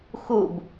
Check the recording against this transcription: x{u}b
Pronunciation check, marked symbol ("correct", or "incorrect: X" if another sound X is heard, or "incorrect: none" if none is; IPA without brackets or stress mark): correct